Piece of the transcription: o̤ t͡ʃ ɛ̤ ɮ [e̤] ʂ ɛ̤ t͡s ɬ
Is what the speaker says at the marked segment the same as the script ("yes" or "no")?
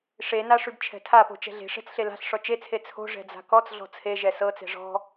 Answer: yes